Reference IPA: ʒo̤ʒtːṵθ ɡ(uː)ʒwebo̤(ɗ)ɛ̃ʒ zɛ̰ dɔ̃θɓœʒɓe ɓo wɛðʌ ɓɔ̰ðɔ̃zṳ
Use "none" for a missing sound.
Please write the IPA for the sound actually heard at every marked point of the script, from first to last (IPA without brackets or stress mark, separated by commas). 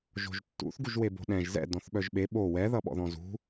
u, ɗ